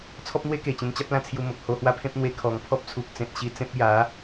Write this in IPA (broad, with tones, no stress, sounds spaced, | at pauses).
t͡sʰ ɔ˦ p̚ n̪ w e˦ k e˨˩ t͡ɕ ẽ˧ n t͡ɕ a˦ p̚ l ã˧ t͡sʰ j u˧ m o˨ k̚ h o˧ h w a˦ pʰ ẽ˦ p̚ n̪ w e˧ kʰ ɔ˨˩ ŋ pʰ ɔ˦ p̚ t͡sʰ u˨ k̚ t͡s ẽ˨ t̚ ɕ i˧ t͡s ẽ˦ p̚ j a˨˦